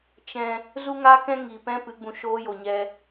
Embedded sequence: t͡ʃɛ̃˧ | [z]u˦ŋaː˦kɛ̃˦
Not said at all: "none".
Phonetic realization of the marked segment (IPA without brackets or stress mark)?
z